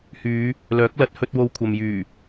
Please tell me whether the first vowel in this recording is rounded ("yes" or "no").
yes